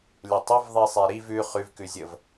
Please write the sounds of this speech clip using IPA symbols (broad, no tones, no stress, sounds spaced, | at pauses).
lʲ ə tˤ ə v ðˤ i sˤ e ɾ i v ʉ χ ʉ v k ʉ zʲ ə v